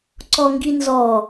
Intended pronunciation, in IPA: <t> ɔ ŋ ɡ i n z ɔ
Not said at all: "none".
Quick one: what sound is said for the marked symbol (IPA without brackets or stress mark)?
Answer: ǀ